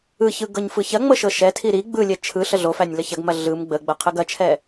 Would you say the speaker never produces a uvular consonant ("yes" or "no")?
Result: no